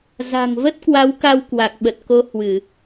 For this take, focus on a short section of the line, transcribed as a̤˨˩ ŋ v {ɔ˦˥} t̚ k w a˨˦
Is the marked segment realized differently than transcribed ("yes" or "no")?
yes